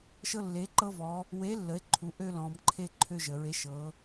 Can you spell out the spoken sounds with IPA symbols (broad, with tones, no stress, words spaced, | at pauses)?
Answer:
ʃɤ˦lːe˨˥ ǃɤ˦vɔ˩˧ | we˨˥lːə˩˧e̯ ǃʰu˩˧ʔø˦ lɔ̃˩˧mǃʰe˦ ǃʰø˦ʒə˩˧ɹe˨˥ ʃɤ˩˧